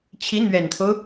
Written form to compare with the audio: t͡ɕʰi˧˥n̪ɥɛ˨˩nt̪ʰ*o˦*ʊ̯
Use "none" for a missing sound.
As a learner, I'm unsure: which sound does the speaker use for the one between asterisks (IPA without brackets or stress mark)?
o˦